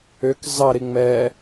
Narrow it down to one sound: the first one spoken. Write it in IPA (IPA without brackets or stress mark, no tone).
ʏ